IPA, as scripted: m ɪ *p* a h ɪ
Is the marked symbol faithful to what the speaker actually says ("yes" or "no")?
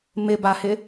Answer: no